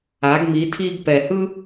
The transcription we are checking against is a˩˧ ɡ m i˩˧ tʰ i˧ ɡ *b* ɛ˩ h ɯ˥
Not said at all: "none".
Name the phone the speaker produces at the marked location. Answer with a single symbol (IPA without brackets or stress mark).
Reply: p